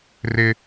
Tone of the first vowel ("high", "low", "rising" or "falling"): high